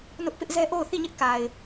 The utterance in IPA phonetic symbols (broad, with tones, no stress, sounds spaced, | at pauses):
n ʊ˦ ʔ p ɪ˦ ʔ z ɛ˦ ʔ o˦˨ ʊ̯ θ i˦˨ ɲ ɪ˦ ʔ k a˨ ɪ̯